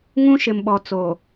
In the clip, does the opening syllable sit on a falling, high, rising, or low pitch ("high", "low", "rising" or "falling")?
high